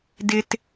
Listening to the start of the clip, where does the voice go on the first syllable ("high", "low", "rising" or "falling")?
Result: high